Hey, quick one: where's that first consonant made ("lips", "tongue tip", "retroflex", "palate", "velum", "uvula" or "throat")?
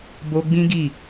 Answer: lips